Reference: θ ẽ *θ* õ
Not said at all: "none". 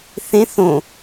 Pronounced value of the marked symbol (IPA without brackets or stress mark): θ